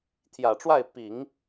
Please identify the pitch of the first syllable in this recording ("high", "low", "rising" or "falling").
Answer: low